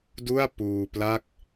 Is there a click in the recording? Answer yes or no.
no